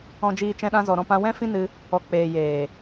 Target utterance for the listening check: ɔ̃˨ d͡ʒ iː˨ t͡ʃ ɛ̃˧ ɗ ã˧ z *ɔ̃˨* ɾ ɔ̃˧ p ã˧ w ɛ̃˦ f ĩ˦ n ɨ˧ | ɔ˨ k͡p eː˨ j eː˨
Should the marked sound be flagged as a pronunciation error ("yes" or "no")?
yes